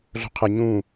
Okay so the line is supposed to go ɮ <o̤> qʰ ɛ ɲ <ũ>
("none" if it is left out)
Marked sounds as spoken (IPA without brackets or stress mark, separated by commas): o̤, ũ